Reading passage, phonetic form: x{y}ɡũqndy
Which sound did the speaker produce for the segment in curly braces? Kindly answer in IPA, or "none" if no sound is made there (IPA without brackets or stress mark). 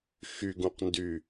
y